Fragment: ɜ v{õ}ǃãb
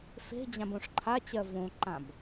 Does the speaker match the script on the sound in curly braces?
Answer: yes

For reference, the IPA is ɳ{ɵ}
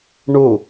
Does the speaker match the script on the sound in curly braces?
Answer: no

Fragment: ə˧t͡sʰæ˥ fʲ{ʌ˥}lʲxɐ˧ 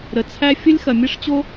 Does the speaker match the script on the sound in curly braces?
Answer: no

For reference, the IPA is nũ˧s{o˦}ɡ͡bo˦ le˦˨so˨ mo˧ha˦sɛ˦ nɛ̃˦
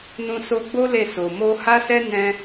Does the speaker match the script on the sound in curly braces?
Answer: no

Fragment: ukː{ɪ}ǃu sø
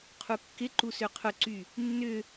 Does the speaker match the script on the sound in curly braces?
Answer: yes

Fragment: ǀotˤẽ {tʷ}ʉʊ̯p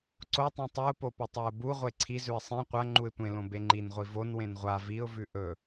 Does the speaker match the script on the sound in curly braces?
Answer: no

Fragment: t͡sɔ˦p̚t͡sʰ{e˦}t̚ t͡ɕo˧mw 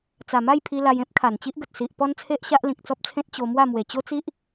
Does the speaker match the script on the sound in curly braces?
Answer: no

